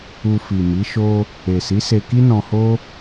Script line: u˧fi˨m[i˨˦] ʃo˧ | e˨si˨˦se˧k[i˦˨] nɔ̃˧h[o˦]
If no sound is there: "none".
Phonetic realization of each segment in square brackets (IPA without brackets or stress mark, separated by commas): i˨˦, i˦, o˦